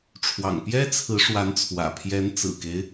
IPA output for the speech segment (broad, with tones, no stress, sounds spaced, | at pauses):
ʈ͡ʂʰ w ɑ̰˨˩ ŋ p j ɛ˥ t͡sʰ ɹ̩˧˥ ʂ w a˧˥ n t͡sʰ w ä̰˨˩ pʰ j ɛ˧˥ n t͡s ɹ̩˨˩ k e˦ ɪ̯